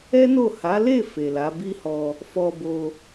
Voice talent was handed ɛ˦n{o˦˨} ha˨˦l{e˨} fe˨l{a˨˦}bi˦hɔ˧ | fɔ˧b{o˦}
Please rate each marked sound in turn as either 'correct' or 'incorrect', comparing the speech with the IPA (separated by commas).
correct, incorrect, correct, incorrect